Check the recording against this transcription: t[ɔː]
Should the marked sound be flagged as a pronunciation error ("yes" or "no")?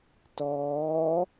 no